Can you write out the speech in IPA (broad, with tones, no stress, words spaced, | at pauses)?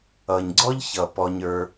ʌ˨ɲɡ͡ǀɔ˦ʎçʌ˨ pɔ˧ɲə˞˧